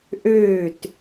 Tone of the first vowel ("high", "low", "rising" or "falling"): falling